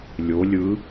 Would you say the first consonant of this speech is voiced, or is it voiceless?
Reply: voiced